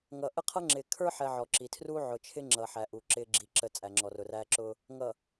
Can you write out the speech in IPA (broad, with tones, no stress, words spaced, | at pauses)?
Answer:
ŋʌ˨ʔə˦qʰʌ˦ ŋ͡ǁɪ˨ kʰə˞˦ħɛ˨ ʕɔ˨ǁi˨ tʰru˦ʕʊ˨t͡ʃʰɪ˦ ŋ͡ǁʌ˨ħæ˨ʔu˨ ǁɪ˨ ɡ͡ǁi˨ǁə˨ t͡sʼæ˨ŋ͡ǁɔ˨rʊ˨ ræ˦ǁʊ˦ | ŋʌ˨